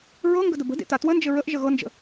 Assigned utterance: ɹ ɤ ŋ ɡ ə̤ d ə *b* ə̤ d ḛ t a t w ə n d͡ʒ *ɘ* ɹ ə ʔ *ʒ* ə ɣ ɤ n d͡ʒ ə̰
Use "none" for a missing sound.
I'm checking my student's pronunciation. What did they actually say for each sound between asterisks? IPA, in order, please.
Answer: b, ɘ, ʒ

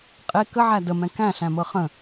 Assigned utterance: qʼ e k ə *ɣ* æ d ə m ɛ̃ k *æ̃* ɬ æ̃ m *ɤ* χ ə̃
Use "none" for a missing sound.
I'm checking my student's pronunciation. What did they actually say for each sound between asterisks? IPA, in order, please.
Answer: ʕ, æ̃, ɤ

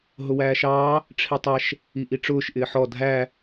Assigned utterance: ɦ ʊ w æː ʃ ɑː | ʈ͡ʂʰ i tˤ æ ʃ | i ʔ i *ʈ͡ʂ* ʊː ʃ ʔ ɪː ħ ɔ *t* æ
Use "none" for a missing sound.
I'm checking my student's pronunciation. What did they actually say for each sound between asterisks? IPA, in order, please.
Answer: ʈ͡ʂ, dʱ

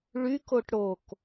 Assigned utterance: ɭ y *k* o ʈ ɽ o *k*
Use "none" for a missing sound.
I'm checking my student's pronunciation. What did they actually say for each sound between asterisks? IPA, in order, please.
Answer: k, k

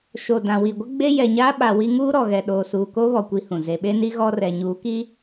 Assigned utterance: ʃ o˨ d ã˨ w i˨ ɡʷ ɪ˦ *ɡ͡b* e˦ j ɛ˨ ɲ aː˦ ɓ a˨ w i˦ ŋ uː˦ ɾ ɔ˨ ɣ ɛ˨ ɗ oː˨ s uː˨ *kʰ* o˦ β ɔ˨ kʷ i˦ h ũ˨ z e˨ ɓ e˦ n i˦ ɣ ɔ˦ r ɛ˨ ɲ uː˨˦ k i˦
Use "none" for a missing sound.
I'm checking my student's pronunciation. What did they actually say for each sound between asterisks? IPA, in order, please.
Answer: ɡ͡b, k

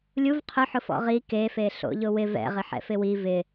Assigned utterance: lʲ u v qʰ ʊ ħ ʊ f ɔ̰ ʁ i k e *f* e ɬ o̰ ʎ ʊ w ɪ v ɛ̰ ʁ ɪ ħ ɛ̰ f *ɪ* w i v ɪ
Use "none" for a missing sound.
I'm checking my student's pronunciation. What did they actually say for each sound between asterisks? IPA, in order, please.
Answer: f, ɪ

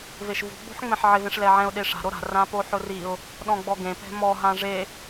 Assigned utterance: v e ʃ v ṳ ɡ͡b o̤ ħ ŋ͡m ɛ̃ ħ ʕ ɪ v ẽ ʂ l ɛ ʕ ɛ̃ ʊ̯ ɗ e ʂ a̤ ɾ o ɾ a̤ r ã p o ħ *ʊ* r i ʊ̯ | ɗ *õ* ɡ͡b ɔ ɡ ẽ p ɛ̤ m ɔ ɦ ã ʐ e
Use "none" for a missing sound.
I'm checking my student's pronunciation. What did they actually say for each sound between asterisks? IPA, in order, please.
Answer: ʊ, ɔ̃

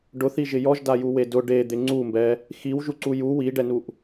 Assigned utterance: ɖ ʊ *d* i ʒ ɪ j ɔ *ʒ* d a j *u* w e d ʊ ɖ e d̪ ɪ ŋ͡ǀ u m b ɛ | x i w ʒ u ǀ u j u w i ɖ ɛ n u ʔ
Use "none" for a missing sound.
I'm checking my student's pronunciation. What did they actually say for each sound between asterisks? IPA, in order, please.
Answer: θ, ʒ, u

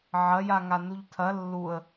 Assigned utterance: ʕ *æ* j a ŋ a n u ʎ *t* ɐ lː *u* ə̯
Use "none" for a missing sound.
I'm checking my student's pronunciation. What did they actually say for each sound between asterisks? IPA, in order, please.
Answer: ɐ, tʰ, u

